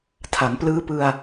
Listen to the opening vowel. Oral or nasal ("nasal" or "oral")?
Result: oral